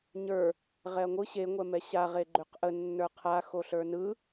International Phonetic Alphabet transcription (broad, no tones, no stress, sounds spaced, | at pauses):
ɲ ə˞ | ʁ ɛ ɐ̯ ŋʷ ɯ ɕ e ŋʷ ɛ m ɛ ɕ a ʁ e ɡ͡ǃ ø q ʔ ə nː ə˞ qʰ a x o ɬ ə˞ n ɯ